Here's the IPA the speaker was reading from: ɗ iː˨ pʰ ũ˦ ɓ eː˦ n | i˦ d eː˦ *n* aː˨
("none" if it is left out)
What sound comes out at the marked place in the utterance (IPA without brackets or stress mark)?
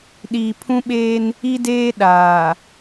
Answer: ɗ